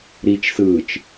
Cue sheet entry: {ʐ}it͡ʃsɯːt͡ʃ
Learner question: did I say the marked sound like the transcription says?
no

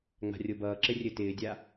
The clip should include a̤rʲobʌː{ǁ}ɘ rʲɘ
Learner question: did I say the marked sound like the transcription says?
yes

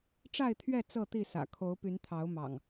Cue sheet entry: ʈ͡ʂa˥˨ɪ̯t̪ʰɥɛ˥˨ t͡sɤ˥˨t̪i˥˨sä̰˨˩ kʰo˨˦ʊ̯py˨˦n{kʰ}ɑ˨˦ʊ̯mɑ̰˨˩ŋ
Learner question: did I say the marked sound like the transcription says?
no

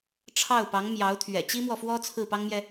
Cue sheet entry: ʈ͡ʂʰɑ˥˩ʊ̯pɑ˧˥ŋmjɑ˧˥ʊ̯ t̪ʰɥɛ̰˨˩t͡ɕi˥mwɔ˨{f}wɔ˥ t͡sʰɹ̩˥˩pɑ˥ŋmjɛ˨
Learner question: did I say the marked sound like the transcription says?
yes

